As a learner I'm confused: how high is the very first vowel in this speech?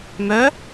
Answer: mid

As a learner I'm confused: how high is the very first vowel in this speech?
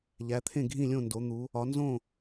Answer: low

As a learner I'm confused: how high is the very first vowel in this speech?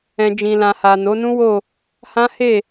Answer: mid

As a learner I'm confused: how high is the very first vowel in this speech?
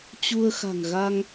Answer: high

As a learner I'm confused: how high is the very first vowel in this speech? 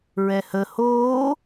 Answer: mid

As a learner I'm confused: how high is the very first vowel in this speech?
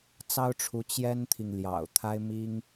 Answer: low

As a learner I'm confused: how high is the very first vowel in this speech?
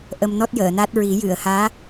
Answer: mid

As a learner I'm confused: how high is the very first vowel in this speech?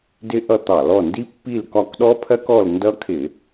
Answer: high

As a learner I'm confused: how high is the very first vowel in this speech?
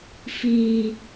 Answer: high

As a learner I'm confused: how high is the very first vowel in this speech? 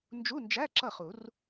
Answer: high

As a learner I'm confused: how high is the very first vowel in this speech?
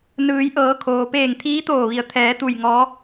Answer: high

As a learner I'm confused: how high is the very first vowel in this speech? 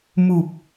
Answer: high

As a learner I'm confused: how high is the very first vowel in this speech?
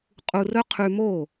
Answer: high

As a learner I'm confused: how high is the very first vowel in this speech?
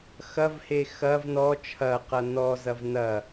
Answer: low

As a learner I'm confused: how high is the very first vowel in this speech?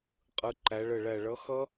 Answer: high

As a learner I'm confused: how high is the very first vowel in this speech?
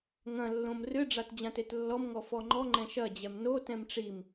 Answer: low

